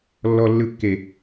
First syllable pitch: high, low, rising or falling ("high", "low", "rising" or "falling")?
low